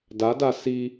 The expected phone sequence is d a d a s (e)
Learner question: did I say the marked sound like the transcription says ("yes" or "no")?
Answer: no